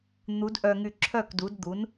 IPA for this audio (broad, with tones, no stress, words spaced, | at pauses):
n̪u˨˥d ʔœ˧ŋy˧ ǁʰœ˥˨kdu˨˥dd̪u˨˥n